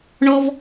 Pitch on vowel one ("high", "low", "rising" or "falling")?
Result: high